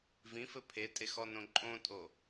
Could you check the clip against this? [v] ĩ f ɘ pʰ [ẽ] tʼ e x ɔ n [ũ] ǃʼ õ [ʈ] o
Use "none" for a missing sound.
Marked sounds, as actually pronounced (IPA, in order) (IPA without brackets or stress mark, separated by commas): v, e, õ, tʼ